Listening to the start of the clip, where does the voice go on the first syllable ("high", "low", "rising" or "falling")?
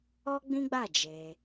high